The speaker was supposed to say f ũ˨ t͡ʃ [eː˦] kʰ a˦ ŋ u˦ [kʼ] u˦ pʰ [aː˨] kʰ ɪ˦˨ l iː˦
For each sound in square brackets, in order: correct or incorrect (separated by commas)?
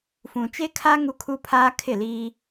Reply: incorrect, incorrect, incorrect